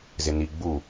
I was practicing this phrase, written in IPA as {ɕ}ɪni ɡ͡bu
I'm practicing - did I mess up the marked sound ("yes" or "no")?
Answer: yes